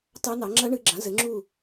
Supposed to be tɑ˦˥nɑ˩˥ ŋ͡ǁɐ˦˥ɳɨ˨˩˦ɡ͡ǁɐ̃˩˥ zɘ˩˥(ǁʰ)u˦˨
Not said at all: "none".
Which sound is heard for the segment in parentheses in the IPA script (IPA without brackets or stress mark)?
ŋ͡ǁ